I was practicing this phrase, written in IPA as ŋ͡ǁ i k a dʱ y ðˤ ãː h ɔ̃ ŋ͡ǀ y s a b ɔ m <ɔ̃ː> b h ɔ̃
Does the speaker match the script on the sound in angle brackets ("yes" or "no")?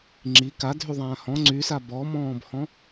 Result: yes